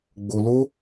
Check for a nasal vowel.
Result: absent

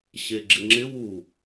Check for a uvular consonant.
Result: absent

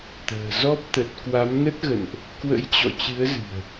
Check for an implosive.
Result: absent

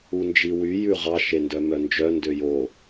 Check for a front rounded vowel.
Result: present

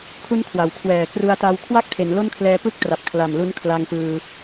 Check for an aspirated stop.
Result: present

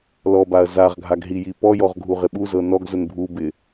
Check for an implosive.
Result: present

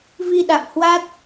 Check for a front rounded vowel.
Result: absent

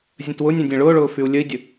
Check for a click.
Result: absent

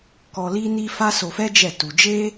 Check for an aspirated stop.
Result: absent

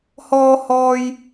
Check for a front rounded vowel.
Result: absent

